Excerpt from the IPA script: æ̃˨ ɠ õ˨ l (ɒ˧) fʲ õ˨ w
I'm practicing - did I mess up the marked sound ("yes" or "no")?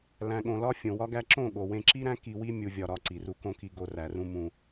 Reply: yes